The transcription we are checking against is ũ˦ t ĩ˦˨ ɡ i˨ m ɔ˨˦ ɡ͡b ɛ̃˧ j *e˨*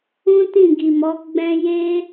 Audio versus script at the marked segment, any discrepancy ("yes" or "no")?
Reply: yes